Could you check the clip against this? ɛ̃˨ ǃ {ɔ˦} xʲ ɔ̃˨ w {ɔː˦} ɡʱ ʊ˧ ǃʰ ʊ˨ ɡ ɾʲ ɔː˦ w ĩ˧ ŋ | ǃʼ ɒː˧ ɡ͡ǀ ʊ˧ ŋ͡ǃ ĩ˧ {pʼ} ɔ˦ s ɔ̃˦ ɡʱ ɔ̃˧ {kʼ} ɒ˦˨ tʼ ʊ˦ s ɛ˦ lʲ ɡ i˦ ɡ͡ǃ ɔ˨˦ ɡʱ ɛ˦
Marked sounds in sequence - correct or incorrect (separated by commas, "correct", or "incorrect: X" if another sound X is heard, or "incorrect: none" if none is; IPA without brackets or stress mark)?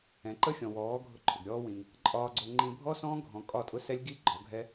incorrect: ə˦, incorrect: ɔː˨˦, incorrect: bʱ, correct